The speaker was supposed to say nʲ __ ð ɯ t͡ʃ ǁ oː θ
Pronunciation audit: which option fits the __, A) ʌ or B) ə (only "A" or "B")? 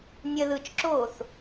B